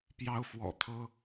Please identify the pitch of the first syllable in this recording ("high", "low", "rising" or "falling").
high